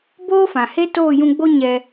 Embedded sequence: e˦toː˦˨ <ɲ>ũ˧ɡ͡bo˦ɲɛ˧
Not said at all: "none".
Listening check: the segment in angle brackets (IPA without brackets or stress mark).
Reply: j